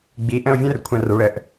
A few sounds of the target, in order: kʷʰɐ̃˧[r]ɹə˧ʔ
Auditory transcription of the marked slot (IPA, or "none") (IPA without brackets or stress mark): r